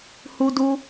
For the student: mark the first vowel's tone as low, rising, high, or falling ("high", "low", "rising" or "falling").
high